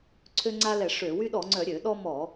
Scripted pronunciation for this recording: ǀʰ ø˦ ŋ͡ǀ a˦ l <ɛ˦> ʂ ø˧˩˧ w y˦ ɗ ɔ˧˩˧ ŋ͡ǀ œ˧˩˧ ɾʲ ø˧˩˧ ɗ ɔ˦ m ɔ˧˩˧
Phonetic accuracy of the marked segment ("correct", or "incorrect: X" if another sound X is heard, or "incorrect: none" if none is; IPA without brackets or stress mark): incorrect: ɛ˧˩˧